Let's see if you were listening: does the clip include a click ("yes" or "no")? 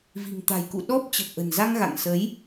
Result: no